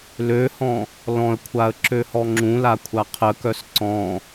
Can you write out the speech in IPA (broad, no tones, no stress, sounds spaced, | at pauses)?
l ø h ɔ̃ | l ɔ̃ ə̯ kʷʰ a ə̯ ǁ ø h ɔ ŋ͡ǁ ũ l a kʷʰ a qʰ ə k œ s ǀ ɔ̃